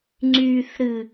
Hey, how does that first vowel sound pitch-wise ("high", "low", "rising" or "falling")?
high